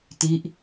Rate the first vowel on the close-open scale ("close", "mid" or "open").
close